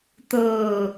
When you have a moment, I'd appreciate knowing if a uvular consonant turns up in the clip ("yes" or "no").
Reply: no